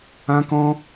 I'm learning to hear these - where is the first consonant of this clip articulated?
velum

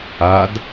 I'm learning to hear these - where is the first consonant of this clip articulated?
tongue tip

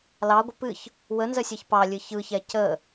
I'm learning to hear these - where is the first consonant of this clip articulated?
tongue tip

